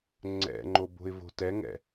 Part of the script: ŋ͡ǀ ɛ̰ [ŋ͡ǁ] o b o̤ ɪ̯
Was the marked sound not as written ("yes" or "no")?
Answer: yes